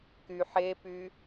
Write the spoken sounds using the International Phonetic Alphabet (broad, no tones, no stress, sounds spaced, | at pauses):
k y ħ e p y